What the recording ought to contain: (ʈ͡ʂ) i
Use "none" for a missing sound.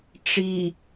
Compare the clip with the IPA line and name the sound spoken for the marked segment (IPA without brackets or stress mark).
ʈ͡ʂ